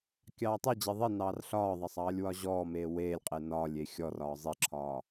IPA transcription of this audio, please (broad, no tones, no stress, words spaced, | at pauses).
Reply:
kʲɑːtˤed͡ʑe ðˤinɑːr ɬɒːðˤɑsˤ ɑːlʲwɒʑɔːmeː weːlʲqʼe nɒːlʲe xʲɔrɒː zˤiǁʰɒː